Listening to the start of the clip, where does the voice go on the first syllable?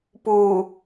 low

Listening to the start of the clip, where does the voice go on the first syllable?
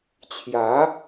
rising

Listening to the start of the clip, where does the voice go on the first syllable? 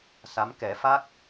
rising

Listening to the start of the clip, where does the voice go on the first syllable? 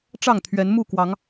falling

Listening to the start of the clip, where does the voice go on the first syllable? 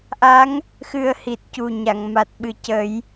rising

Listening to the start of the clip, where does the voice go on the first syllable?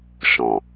low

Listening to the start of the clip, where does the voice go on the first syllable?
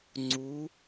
rising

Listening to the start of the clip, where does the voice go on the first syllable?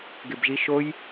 low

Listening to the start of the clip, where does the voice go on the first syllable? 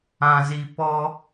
low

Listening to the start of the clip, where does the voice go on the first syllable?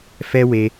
high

